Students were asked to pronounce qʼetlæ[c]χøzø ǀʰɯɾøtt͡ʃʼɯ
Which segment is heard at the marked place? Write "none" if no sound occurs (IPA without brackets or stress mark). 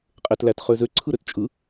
t